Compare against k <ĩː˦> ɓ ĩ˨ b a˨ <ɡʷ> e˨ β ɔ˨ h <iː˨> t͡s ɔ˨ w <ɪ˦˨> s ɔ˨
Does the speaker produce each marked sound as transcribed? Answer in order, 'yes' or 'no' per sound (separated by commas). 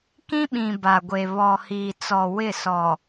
no, yes, yes, yes